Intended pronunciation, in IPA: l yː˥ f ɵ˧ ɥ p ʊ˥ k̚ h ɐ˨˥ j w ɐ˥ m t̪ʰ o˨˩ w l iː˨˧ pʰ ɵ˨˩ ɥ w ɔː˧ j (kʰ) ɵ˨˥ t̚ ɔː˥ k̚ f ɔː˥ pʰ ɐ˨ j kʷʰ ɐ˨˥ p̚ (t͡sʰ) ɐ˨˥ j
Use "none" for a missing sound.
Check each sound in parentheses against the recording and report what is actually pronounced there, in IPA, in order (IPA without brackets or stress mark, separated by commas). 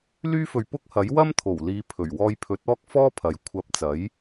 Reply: pʰ, t͡s